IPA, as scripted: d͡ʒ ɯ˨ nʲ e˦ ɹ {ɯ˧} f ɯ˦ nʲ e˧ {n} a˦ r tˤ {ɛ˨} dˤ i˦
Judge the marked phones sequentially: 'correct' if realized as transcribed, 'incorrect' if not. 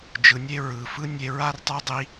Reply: incorrect: ɯ˨, incorrect: ɹ, incorrect: ɛ˦

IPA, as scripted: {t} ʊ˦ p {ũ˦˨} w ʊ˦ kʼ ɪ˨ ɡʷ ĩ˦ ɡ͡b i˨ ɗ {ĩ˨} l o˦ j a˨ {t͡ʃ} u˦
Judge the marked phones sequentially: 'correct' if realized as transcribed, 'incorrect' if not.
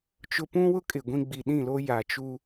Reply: incorrect: t͡ʃ, incorrect: ũ˦, incorrect: ĩ˦˨, correct

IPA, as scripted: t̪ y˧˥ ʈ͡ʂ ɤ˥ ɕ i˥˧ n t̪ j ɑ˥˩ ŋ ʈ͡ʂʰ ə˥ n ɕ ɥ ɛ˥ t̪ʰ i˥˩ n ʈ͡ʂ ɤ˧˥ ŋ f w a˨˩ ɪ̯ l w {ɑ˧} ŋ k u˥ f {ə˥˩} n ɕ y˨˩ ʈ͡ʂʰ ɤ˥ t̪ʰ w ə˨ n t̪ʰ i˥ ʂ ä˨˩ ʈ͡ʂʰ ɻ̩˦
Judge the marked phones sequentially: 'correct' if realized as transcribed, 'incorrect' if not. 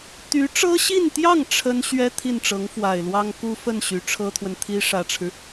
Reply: incorrect: ɑ˥, correct

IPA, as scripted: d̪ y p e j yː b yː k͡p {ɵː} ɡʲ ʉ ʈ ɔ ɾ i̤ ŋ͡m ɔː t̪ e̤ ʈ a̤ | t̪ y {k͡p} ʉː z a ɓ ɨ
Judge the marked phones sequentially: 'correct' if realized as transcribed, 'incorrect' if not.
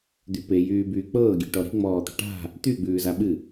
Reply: incorrect: ɤː, incorrect: ɡ͡b

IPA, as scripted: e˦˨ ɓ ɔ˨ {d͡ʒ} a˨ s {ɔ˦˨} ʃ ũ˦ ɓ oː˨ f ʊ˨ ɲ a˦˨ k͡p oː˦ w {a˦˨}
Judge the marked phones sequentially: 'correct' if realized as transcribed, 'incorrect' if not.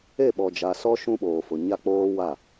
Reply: correct, incorrect: ɔ˦, correct

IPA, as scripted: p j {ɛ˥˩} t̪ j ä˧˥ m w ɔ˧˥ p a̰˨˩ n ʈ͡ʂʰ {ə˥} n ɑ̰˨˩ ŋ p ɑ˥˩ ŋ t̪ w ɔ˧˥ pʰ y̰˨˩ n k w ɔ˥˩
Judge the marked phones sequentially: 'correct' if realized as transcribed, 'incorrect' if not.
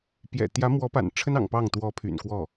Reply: incorrect: ɛ̰˨˩, correct

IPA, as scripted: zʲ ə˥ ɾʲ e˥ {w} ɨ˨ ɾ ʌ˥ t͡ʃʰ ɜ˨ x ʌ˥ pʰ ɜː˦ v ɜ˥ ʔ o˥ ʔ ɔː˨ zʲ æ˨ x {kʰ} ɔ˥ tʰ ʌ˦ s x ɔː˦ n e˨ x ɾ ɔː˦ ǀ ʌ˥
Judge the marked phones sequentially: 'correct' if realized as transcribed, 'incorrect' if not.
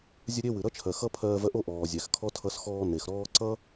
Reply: correct, correct

